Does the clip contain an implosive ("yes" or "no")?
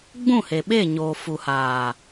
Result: yes